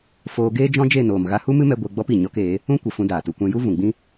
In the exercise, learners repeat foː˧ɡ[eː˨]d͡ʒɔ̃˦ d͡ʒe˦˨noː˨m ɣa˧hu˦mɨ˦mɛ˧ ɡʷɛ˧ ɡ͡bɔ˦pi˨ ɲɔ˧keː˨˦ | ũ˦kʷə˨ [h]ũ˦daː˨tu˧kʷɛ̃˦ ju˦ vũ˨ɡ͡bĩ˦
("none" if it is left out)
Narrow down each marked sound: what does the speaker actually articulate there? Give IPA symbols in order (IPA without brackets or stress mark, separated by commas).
eː˦, f